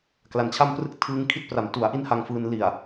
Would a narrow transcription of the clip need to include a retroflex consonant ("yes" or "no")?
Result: no